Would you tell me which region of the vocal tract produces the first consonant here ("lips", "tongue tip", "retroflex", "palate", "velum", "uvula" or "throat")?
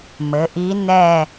lips